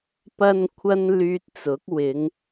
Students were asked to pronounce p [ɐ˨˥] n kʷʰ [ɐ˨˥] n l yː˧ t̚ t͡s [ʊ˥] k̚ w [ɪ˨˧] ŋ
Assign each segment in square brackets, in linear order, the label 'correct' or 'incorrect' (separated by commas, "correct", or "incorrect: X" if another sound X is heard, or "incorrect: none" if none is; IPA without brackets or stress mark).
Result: incorrect: ɐ˥, incorrect: ɐ˥, incorrect: ʊ˨˥, correct